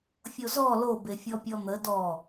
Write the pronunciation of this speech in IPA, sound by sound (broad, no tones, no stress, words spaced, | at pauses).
fʲozɔ lobefʲɔ pʲɔn̪ə dɔ